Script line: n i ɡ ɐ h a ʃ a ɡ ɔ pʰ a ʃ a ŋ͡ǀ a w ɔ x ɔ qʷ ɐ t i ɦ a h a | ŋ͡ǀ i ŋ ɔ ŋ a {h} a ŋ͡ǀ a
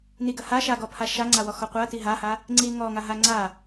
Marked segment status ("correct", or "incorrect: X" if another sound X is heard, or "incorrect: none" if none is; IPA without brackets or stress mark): incorrect: ɦ